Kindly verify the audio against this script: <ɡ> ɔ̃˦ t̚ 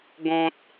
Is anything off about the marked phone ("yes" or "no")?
no